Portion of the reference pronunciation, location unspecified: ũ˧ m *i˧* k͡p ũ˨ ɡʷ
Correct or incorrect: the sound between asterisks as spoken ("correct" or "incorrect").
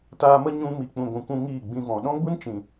incorrect